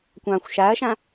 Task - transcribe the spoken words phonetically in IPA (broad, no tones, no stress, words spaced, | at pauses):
kʷɑ̃xʷ ʃaɐ̯ʃã